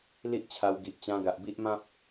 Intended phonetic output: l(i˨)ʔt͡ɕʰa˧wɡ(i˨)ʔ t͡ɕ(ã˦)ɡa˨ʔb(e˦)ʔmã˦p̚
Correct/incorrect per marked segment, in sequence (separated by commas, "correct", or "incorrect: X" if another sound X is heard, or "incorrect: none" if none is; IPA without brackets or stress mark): incorrect: i˦, correct, incorrect: ã˧, incorrect: i˦